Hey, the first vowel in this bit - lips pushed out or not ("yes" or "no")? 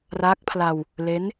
no